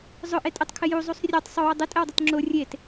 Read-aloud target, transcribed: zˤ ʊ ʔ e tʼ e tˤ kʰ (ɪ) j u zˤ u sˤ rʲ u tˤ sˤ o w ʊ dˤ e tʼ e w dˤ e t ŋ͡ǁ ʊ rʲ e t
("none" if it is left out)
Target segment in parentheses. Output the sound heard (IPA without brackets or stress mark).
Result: ɪ